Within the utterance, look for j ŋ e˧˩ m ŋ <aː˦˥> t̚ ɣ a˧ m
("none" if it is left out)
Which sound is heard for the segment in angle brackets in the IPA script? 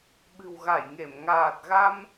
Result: aː˨˩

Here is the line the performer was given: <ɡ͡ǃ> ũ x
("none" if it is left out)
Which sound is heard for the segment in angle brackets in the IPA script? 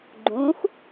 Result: ɡ͡ǃ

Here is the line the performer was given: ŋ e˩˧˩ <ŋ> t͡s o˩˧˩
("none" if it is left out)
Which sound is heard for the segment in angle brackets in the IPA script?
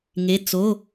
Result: none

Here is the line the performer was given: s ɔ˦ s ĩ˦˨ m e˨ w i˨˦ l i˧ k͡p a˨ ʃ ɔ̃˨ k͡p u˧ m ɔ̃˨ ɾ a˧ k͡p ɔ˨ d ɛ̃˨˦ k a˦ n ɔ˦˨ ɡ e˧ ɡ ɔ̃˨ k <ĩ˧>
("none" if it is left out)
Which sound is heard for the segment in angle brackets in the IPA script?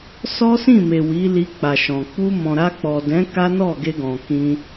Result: ĩ˧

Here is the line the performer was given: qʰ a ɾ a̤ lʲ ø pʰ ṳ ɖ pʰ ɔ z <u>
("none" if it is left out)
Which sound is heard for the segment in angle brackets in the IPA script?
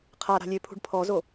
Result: o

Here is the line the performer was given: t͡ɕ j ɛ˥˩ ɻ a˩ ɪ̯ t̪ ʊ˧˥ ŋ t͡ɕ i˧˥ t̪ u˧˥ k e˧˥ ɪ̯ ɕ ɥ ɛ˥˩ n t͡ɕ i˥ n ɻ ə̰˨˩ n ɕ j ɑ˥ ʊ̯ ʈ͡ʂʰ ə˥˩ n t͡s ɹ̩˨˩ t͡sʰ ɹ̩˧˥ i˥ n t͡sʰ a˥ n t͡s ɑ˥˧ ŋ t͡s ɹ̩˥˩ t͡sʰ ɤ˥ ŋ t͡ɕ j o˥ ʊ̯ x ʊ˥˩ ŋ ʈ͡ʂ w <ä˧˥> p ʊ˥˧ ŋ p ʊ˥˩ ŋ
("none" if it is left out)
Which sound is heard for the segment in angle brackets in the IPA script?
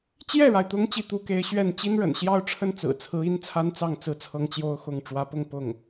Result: ä˧˥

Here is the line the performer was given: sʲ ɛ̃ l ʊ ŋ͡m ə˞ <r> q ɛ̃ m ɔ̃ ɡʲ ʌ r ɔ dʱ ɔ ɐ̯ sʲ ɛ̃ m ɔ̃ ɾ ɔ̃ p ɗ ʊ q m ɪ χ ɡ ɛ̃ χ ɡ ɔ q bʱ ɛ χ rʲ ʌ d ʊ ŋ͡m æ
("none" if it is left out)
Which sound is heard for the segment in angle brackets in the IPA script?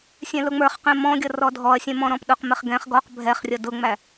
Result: χ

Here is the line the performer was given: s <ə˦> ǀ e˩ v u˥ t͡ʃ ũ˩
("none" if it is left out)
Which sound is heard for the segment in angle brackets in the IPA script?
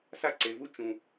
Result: a˦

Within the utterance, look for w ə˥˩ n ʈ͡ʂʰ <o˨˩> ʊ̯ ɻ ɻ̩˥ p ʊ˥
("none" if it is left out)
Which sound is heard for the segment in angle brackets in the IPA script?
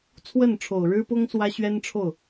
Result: o˨˩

